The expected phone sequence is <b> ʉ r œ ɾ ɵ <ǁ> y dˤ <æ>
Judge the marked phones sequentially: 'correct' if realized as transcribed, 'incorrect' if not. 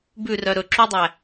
correct, correct, correct

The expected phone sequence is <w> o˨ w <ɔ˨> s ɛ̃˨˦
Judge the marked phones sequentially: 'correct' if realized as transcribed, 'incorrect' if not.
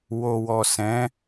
correct, correct

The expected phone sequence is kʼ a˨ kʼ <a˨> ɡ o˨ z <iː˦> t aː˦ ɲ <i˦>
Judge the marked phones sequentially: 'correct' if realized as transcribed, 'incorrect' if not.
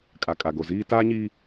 correct, correct, correct

